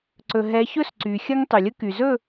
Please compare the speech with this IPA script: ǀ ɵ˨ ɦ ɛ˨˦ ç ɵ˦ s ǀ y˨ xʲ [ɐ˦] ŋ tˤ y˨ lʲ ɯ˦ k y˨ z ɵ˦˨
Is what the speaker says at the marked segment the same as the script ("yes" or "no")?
yes